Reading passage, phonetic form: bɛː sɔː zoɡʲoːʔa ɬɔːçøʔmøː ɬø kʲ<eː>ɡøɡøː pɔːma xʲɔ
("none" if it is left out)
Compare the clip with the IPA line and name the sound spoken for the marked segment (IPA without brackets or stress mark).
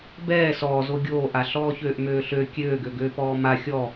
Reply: øː